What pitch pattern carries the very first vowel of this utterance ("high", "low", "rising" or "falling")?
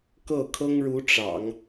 falling